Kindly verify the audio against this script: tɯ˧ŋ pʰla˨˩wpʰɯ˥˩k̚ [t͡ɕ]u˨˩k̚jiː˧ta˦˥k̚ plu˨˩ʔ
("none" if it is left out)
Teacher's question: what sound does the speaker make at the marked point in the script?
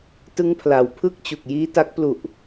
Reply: t͡ɕ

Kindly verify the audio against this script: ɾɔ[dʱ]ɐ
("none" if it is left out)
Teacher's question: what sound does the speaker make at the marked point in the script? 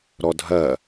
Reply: dʱ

